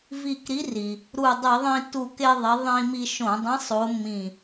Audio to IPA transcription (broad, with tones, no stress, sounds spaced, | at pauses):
v i˧˩ k ɾ i˨˥ r i˩ | ɾ u˧˩ dˤ i˧˩˧ ðˤ ĩ˧ t u˧˩ k e˧ ðˤ e˨˥ ðˤ ĩː˧ m i˧ ʃ õ˧˩˧ dˤ ĩ˨˥ sˤ o˨˥ mː ĩ˧˩